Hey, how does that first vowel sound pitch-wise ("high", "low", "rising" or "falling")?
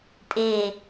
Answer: falling